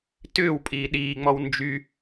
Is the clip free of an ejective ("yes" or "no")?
no